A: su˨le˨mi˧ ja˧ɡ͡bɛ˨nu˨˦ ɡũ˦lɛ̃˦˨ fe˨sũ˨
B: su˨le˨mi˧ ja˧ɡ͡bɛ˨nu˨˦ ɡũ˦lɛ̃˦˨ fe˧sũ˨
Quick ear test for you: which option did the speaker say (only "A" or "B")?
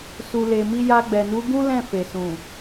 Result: A